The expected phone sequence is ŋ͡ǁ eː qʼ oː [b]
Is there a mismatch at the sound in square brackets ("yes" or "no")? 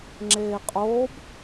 no